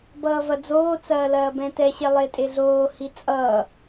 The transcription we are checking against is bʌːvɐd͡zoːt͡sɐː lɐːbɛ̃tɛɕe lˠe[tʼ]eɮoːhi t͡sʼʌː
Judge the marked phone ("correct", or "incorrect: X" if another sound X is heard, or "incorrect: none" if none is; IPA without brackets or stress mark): correct